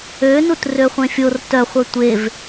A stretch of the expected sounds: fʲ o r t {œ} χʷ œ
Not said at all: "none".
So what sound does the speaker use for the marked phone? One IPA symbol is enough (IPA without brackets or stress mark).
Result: œ